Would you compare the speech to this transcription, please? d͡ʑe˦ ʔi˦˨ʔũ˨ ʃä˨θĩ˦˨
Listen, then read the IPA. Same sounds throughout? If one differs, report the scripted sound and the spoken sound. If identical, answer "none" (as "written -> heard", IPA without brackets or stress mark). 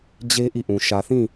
none